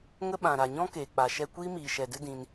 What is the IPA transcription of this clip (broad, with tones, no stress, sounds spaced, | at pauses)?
ŋ ə˦ ɓ ã˨ ɾ a˨ ɲ ɔ̃˦ k eː˨ k͡p a˨ ʃ ɛ˧ kʷ iː˦ m iː˨ ʃ ɛ˨ d ɨ˦ d ĩ˧ n